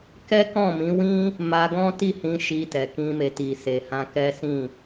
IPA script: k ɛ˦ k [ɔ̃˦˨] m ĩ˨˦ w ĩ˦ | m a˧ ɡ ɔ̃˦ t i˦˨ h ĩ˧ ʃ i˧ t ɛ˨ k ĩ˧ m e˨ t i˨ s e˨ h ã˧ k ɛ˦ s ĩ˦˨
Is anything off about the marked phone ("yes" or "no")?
no